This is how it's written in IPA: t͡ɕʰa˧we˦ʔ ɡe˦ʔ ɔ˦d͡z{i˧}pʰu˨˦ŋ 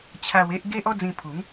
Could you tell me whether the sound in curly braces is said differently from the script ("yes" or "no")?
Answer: yes